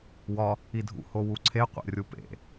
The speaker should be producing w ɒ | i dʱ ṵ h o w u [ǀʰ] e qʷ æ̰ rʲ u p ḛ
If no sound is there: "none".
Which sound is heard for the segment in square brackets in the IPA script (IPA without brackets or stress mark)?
ǀʰ